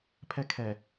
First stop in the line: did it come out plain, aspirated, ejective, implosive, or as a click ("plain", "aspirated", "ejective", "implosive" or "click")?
aspirated